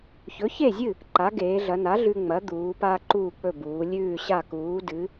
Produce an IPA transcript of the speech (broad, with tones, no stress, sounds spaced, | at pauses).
ç ɵ˩˥ ç e˥˩ zʲ ɨ˥˩ | ǃ a˩˥ ɡ eː˩˧ ɮ ɐ˩˧ n a˩˥ ɮ ʉ˧ ŋ͡m ɐ˩˥ d̪ uː˩˧ p aː˧ ǃ uː˧˩ k͡p ɵ˧˩ b uː˩˧ lʲ ʉː˧˩ ɕ a˧˩ k uː˩˧ d ɨ˩˧